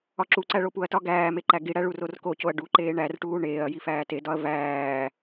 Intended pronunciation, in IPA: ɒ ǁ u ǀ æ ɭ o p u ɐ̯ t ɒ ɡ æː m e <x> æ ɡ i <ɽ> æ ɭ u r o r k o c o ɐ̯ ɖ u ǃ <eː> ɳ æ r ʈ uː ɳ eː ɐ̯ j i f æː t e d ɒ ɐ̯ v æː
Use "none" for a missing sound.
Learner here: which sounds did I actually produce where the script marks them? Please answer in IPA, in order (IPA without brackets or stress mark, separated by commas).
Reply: ǃ, ɽ, eː